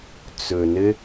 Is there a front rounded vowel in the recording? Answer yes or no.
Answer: no